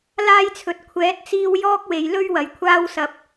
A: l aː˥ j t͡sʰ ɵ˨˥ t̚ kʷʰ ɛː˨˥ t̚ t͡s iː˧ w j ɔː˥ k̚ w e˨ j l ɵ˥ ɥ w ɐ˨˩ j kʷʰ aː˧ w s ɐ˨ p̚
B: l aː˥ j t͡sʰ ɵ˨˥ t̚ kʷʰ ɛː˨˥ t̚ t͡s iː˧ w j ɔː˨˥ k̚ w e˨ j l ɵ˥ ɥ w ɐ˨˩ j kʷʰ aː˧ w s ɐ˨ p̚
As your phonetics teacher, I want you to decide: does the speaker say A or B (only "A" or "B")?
A